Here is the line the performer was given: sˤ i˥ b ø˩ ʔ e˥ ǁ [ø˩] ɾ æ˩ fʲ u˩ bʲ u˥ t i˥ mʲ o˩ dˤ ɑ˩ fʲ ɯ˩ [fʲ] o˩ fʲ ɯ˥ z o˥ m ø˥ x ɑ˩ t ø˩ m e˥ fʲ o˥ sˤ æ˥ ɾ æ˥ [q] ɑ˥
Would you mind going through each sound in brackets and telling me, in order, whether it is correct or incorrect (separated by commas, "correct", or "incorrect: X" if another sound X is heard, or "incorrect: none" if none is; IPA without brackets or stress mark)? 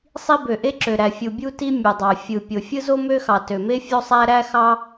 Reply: correct, incorrect: pʲ, incorrect: x